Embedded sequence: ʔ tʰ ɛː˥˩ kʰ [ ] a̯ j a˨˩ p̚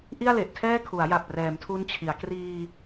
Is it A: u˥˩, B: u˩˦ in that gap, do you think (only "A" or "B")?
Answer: B